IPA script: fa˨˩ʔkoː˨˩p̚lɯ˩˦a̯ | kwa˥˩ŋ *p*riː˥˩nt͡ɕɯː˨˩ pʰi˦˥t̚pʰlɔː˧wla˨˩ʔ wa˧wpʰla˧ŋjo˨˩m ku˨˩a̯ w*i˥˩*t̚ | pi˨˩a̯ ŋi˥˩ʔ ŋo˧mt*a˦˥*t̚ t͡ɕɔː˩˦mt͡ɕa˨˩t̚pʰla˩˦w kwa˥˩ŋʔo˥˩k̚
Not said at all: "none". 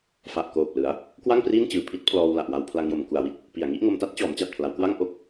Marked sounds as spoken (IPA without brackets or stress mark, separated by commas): p, i˥˩, a˥˩